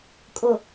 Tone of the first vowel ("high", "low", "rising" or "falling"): low